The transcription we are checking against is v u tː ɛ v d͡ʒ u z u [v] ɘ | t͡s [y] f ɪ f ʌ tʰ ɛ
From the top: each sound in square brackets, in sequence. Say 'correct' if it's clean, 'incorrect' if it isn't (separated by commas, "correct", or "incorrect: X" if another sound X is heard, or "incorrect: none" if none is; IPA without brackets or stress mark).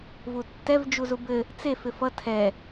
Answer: incorrect: b, incorrect: e